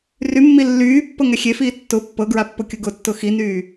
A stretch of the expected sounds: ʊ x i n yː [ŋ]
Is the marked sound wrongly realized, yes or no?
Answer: yes